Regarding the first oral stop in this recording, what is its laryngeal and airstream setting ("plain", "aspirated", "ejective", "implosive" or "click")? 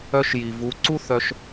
click